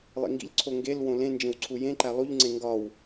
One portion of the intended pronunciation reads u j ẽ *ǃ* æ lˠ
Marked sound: correct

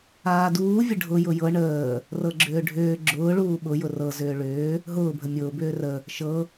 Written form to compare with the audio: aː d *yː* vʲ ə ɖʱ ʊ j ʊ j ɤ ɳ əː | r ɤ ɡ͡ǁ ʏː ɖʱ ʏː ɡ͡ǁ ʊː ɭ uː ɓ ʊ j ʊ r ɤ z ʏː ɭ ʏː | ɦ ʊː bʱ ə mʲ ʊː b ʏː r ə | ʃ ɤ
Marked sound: incorrect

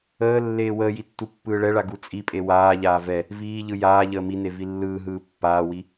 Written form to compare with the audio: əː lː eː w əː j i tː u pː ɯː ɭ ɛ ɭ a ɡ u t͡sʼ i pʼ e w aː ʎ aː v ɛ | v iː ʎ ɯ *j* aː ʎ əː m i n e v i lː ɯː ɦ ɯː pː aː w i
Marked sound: correct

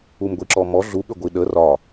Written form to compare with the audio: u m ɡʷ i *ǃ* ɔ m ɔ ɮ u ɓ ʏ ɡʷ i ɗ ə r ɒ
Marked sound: incorrect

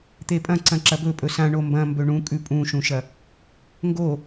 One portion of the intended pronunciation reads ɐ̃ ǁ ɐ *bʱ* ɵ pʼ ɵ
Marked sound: incorrect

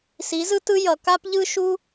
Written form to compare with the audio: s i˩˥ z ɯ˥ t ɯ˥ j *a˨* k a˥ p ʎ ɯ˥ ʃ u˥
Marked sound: incorrect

